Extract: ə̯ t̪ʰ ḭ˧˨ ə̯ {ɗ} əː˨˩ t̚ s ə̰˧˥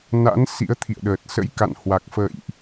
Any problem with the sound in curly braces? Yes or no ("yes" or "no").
no